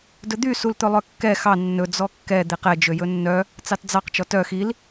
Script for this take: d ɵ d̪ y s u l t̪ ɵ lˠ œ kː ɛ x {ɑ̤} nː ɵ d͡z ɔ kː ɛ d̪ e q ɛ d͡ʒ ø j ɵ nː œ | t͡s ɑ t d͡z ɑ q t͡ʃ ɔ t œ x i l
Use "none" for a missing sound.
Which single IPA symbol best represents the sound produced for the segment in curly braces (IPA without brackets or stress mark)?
ɑ